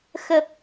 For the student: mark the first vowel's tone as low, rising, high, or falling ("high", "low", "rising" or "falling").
low